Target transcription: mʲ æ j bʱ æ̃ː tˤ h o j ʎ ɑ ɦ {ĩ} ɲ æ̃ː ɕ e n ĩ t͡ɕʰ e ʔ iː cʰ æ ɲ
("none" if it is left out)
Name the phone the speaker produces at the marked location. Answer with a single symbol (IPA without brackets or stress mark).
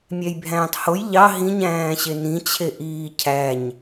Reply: ĩ